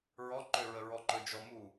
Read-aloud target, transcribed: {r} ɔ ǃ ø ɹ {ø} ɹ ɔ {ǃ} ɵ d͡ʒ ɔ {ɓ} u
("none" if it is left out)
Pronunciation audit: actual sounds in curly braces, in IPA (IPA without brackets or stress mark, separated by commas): ɹ, ə, ǃ, m